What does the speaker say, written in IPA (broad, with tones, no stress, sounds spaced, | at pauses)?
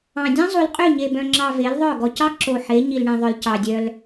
ɑ̃˨ dʲ ɑ̃˦ zˤ u˨ l qʼ ø˦˨ ɲ e˨ b œ̃˨ ŋ͡ǁ ɑ˨ v e˨˦ l ðˤ œ˦˨ ɡ ɔ˨ c ɑ˦ ǁ o˨ ħ e˨˦ ɲ i˨ l ɳ ĩ˨ ðˤ œ˨ l c ɑ˨ dʲ œ˦ l